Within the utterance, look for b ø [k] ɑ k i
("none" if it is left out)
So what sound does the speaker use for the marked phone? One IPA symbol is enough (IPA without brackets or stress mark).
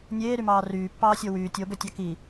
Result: tʲ